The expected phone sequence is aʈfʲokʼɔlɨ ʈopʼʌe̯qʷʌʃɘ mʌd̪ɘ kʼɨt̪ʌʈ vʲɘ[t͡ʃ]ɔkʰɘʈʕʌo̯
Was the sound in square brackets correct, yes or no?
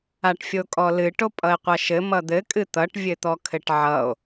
no